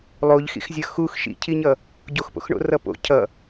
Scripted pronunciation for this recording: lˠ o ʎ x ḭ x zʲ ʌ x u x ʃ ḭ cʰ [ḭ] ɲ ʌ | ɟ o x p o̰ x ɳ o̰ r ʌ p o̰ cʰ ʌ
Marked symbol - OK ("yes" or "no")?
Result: no